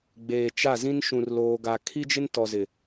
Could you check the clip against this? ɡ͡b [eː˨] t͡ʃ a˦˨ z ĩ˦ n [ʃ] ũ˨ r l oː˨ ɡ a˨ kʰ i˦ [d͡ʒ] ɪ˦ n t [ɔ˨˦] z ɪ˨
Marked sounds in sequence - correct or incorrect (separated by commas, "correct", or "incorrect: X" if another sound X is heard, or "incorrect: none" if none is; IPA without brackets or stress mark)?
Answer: correct, correct, correct, incorrect: ɔ˨